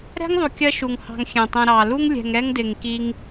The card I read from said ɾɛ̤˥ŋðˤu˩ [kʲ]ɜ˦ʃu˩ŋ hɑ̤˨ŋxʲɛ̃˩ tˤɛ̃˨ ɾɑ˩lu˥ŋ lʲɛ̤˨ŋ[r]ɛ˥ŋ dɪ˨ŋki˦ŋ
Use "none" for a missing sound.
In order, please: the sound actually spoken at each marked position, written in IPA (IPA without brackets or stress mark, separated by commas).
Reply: kʲ, ɾ